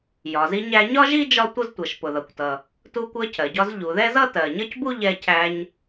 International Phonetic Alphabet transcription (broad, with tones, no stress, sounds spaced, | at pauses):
j ɒ˩ z i˧ ɲ æ˧ ɲ ɒ˥ ʒ i˥ d͡ʒ ɒ˥ tʷ ə˥ z tʷ ʌ˩ ʃ p ʊ˩ ð ʌ˩ kʷ t ʌ˩ | t u˧ kʷ ɜ˧ cʰ ɜ˩ ɟ ɒ˧ z ʎ u˩ ð ɛ˥ z ʌ˥ t ɜ˩ ɲ ʌ˥ c b u˥ ʎ ɛ˧ cʰ æ˧ ɲ